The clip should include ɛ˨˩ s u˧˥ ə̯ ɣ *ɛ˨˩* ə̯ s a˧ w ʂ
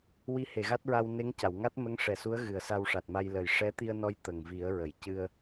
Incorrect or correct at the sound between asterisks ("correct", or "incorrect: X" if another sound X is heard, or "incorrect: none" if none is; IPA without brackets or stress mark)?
incorrect: ɨ˨˩